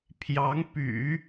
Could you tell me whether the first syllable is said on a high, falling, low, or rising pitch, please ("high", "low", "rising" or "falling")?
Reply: rising